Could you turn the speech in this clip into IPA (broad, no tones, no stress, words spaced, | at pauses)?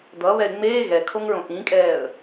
d̪ʌ βɛɪ̯ŋ͡meː ɣɛ kʰoŋɹõʔĩkʼɛːə̯